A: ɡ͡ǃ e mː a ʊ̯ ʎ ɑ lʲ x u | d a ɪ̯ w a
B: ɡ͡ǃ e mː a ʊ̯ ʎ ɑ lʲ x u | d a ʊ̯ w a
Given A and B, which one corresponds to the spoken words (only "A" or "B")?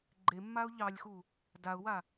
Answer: B